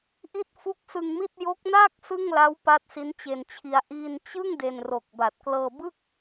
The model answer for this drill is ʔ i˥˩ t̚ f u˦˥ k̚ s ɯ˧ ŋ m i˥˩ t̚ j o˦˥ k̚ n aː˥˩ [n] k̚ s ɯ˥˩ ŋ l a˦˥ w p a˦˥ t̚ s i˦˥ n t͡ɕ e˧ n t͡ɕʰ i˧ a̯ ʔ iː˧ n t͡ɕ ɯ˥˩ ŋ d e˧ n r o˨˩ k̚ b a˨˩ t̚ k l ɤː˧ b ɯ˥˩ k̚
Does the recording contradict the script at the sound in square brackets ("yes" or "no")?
yes